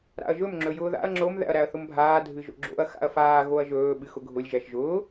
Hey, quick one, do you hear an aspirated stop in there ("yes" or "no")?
no